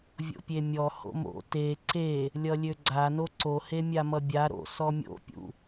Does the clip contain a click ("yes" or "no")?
yes